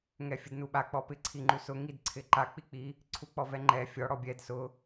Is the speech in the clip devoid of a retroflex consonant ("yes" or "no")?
no